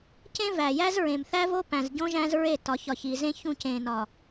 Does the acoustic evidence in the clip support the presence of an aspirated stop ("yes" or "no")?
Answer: no